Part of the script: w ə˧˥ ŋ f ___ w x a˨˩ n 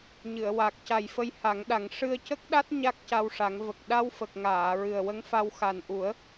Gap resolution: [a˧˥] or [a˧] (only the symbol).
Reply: a˧